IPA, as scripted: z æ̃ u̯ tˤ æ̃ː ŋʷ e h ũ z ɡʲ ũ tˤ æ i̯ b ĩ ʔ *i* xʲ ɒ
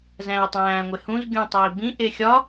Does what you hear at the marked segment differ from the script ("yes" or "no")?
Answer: yes